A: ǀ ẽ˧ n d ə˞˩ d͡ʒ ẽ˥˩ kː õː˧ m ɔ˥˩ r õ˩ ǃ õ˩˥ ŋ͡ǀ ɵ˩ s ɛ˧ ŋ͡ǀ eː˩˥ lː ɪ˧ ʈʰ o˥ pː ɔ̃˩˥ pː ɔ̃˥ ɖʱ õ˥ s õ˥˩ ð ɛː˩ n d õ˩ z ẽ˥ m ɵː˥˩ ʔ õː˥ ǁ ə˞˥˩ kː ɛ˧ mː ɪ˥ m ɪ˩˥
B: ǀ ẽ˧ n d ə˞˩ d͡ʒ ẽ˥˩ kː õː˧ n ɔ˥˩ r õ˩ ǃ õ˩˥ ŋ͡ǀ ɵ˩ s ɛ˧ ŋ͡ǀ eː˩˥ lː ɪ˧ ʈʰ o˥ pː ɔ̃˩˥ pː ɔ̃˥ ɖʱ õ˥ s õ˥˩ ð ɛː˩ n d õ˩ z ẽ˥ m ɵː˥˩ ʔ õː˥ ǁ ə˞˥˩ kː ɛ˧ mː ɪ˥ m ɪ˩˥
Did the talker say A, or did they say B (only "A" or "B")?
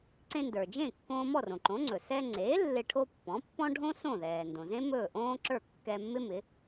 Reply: A